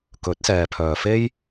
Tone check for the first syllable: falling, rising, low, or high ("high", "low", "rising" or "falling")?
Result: rising